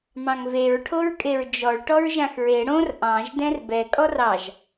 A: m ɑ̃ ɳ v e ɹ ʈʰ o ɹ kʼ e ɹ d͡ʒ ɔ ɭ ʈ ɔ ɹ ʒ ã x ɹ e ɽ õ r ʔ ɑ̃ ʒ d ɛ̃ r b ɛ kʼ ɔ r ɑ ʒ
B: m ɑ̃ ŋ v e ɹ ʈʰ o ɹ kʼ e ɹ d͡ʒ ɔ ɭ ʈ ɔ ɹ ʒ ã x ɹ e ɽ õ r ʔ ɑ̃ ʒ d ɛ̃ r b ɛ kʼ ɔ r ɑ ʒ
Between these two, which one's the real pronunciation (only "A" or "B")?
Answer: B